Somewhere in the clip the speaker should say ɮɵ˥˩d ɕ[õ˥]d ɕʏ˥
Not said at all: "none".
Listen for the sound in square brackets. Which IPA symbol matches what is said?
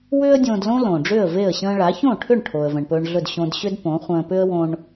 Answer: õ˧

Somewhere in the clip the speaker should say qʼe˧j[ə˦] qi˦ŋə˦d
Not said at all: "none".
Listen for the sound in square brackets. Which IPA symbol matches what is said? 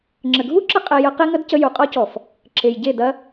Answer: ə˦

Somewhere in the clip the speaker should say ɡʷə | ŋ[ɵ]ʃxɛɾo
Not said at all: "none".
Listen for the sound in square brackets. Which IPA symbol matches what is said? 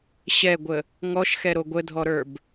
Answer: ɔ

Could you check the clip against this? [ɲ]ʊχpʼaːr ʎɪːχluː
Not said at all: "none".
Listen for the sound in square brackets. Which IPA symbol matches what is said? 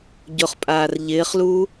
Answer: ɟ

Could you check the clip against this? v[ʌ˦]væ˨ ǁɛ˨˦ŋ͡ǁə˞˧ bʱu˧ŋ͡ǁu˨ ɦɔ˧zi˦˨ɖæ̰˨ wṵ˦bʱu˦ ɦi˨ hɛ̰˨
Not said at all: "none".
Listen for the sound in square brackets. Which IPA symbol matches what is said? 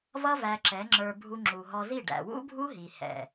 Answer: ʌ˦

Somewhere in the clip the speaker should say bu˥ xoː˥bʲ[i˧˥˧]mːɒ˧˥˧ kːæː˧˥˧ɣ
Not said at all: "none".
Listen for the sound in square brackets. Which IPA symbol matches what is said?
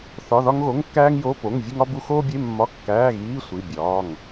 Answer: e˧˥˧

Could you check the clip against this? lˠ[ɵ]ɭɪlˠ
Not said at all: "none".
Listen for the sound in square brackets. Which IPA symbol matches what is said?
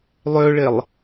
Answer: ø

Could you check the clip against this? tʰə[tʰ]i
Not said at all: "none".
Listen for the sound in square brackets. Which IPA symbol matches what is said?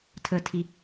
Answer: tʰ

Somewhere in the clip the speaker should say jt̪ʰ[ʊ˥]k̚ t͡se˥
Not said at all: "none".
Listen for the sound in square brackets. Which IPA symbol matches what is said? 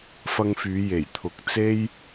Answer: ʊ˨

